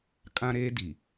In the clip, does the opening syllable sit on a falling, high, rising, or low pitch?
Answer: high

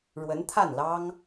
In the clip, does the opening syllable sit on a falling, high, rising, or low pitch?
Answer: rising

